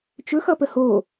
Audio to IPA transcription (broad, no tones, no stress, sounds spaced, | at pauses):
t͡ʃ ɵ x ʌ p ə h o